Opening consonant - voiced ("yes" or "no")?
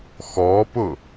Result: no